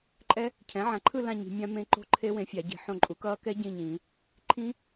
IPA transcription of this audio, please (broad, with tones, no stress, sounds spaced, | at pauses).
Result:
ǃʼ ɛ˦˥ | cʰ ɛ̃˩˥ ʕ ã˩˥ ǃʰ ɯ˥˨ l ã˥˨ ɲ i̤˨˩˦ mʲ ã˦˥ m ẽ˦˥ ǃ o̤˦˥ ǃʰ e˦˥ w ẽ˩˥ fʲ a˨˩˦ ɟ i̤˨˩˦ ħ õ˥˨ ǃʼ u˩˥ k ʌː˦˥ k ɛ˦˥ ɟ ĩ˥˨ ɲ ĩː˨˩˦ | ǃʰ ĩ˦˥